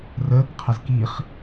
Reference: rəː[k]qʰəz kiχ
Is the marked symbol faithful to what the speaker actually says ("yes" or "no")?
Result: yes